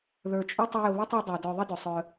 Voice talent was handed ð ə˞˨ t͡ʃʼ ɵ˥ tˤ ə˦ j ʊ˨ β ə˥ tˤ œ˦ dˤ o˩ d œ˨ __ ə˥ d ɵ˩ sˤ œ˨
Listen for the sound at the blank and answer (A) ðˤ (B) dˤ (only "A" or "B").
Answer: A